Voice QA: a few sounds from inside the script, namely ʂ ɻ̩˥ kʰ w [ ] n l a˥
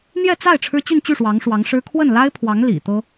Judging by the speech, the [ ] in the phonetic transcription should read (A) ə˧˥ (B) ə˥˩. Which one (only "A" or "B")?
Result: B